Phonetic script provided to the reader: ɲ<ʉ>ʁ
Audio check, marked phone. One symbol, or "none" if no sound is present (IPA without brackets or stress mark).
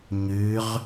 ʉ